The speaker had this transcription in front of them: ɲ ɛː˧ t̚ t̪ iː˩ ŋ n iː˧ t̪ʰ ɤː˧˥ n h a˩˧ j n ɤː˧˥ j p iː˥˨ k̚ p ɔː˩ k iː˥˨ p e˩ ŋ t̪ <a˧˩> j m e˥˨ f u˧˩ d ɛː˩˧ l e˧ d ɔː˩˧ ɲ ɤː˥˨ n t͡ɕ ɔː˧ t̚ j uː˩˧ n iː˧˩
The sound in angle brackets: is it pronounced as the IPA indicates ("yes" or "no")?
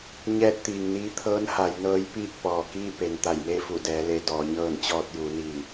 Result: yes